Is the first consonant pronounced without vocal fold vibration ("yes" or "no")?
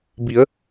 no